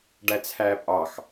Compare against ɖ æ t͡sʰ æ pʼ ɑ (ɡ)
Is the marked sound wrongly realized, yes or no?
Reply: yes